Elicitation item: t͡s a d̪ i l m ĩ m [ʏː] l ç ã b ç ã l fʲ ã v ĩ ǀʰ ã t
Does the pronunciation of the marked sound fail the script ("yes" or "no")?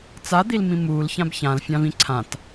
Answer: yes